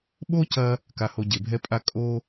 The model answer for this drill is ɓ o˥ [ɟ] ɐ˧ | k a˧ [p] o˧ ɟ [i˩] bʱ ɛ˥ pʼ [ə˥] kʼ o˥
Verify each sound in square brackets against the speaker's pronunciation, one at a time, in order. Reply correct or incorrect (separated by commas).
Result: incorrect, incorrect, incorrect, incorrect